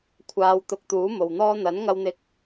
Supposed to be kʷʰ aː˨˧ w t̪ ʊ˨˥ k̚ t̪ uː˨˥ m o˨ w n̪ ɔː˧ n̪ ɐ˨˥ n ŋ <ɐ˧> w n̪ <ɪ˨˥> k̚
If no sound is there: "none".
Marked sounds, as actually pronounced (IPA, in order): ɐ˧, ɪ˧

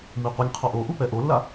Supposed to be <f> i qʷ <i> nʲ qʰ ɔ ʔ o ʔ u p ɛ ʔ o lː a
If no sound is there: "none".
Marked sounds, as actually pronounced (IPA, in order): m, i

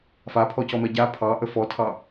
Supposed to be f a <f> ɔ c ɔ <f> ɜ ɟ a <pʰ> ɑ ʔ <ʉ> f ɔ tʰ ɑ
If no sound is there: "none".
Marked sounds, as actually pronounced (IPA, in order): pʰ, m, pʰ, ə

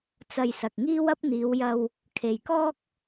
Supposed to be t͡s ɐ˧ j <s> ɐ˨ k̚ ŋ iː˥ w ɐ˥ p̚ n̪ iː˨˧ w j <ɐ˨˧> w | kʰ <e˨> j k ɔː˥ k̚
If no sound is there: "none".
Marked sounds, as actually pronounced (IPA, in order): s, ɐ˧, e˨

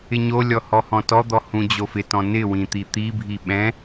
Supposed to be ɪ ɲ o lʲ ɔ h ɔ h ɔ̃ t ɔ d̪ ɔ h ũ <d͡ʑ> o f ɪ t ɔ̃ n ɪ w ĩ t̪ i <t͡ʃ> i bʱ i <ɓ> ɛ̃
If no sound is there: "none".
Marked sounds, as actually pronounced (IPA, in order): d͡ʑ, t̪, ɓ

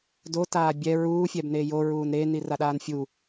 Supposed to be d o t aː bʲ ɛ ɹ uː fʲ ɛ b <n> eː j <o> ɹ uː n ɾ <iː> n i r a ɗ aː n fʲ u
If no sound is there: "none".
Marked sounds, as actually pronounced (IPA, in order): n, o, eː

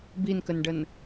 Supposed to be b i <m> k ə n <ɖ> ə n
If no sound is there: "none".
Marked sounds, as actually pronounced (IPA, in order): n, ɖ

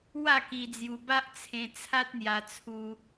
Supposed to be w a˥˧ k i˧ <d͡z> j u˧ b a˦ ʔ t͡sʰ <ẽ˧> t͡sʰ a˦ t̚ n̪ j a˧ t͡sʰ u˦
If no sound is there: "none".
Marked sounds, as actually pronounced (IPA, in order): d͡z, ẽ˧

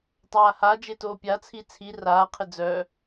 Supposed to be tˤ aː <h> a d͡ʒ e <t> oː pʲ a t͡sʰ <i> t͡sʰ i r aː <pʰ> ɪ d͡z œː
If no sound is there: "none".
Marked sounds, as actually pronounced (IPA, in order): h, t, i, qʰ

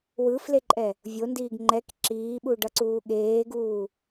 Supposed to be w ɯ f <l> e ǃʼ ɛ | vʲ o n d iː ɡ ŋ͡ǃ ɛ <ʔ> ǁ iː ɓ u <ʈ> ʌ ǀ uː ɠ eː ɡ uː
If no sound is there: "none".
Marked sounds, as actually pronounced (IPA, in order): l, k, ɖ

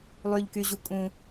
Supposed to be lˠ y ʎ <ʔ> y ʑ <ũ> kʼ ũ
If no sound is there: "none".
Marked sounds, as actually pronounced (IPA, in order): k, u

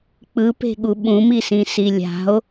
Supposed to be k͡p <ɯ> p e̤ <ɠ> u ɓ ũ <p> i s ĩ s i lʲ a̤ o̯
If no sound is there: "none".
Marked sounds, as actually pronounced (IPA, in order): ɯ, ɠ, m

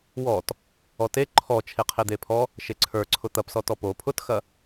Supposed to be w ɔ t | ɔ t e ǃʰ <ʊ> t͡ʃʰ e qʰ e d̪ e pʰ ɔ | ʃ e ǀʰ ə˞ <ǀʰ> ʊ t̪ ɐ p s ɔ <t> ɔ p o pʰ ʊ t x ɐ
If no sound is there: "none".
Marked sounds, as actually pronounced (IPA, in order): ɔ, ǀʰ, t

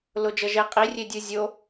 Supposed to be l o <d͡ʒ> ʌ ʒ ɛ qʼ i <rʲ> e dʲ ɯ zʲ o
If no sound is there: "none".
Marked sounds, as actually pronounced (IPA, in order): d͡ʒ, rʲ

